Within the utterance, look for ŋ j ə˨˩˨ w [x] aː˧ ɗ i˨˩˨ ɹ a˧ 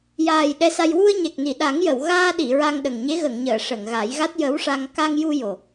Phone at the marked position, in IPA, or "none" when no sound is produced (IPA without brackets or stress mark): ɣ